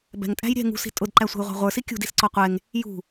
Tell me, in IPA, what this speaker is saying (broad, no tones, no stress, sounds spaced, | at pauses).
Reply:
b ɛ̤ ŋ tʼ æ̤ j ɾʲ ɛ̤ ŋ ṳ s i̤ tʼ ʊ d ǃ æ sʷ ɛ̤ j ʁʷ ɑ̤ ʁʷ ə˞ s i kʲ ṳ d i s ǀ ɔ qʷ ɛ ŋ | j ṳ